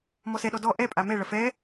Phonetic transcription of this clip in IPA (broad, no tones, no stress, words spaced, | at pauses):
mɔsɛɗɔ dɔ ʔɛ pʼamɛɭɐ fɛ